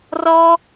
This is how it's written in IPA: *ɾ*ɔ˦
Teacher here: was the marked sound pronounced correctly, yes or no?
no